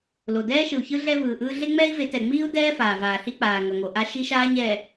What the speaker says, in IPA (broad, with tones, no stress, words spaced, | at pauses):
lo˨ dɛː˦ʃɯ˨u̯çɯ˦ ɮɛ˦vɯː˨ʔɯː˦ ɮe˦ŋ͡mɛː˦i̯ve˨˦ tɛ˨ŋ͡miː˦u̯dɛː˦ faː˨ vaː˨ɬi˦k͡paː˨ ŋʌ˨ŋo˨ʔa˦ ʃi˦ʃaː˦ɲɛ˨